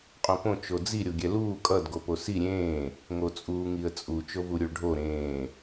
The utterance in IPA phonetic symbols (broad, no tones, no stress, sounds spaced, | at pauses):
qʼ õ p õ t͡ʃ o d͡z i ɾʲ o ɡʲ ɛ l uː kʼ ʌ d ɡ o p o s i ɾʲ ẽː | ŋ o t͡sʼ uː ŋ i ə̯ t͡sʼ u t͡ʃ o v u ɾʲ u ɭ ɖʱ o ɾ ẽː